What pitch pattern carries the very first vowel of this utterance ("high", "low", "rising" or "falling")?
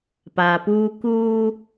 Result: low